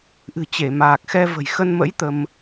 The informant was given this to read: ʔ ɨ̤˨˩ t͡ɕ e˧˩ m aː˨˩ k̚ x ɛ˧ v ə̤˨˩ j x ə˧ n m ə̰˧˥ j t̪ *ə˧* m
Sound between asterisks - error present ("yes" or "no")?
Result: no